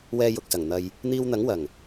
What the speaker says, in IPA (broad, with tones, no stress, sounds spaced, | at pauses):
w ɛː˧ j ʊ˨ k̚ s ɐ˨˩ ŋ n̪ ɐ˧ j | n̪ iː˧ w n̪ ɐ˨˥ ŋ w ɐ˨˩ ŋ